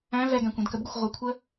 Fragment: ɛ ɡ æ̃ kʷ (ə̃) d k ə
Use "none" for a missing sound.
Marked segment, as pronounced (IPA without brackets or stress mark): ɛ̃